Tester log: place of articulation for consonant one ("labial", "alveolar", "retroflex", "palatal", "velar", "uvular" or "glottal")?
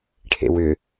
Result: retroflex